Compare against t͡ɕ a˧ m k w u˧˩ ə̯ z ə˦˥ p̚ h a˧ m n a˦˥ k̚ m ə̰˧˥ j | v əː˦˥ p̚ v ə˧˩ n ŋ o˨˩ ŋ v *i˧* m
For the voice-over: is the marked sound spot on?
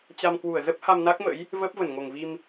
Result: yes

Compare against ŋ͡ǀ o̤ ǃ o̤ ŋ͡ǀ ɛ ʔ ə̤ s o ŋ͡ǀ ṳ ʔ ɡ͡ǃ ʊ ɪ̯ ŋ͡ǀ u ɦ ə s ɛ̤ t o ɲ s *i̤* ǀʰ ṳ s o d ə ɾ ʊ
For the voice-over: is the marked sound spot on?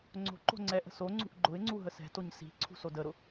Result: yes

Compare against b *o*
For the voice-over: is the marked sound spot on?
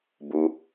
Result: no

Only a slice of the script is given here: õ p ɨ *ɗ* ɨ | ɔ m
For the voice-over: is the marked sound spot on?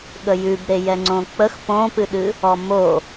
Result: yes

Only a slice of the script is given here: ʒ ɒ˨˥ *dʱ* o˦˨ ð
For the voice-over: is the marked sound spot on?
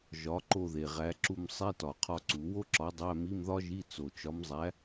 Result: no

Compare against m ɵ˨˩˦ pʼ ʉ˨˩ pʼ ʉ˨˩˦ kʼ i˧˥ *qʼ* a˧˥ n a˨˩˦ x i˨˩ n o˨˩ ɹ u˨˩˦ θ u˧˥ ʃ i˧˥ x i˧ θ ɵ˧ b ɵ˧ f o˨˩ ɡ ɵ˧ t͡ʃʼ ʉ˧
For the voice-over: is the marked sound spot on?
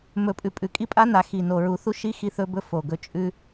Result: no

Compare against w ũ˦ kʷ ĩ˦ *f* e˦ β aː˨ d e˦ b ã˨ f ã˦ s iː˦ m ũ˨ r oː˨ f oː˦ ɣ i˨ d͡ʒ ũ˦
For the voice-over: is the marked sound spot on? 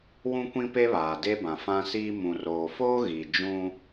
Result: no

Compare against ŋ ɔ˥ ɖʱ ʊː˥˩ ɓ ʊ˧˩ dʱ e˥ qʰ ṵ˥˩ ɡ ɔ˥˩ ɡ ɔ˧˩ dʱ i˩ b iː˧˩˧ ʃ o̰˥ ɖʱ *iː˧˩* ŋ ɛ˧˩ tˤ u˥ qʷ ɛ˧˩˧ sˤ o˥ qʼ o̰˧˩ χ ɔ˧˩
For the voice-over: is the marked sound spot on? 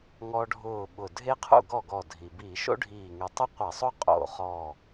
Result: yes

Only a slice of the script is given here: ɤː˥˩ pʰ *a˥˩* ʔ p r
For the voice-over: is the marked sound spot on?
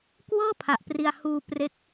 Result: no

